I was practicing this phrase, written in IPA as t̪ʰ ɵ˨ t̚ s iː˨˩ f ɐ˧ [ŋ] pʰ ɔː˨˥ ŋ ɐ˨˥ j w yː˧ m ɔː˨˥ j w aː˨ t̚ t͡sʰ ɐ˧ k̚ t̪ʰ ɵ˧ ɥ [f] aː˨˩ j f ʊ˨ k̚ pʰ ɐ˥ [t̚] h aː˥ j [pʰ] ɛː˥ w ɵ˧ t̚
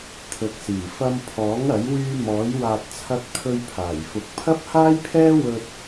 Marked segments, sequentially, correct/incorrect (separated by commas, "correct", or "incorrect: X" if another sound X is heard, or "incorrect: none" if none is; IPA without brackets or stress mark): incorrect: m, incorrect: pʰ, incorrect: p̚, correct